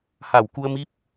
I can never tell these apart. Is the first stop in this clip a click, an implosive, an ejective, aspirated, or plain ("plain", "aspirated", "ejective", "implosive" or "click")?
plain